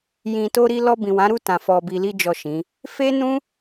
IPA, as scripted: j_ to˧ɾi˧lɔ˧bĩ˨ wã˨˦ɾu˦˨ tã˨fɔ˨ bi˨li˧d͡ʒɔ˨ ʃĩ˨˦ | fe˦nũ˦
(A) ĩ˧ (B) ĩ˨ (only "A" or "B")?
B